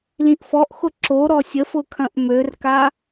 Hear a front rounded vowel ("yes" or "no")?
yes